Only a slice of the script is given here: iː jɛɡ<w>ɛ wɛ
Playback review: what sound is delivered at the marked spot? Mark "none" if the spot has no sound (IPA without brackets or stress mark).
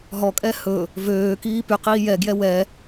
j